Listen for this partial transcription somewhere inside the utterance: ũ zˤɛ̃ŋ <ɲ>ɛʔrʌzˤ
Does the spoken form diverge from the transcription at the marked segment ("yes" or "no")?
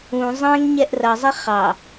no